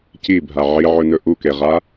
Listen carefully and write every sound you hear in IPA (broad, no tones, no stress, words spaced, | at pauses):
cibʱa ʕiʕɵnɵ ʔukeʁa